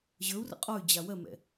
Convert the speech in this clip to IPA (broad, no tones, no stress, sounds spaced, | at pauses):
ʑ ə˞ u̯ r ə̰ qʼ ɔ y̯ d͡ʑ a w ɜ m ɛ̰